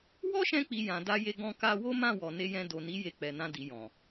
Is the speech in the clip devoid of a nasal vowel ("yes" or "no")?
no